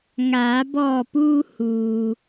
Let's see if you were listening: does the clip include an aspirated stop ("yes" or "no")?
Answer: no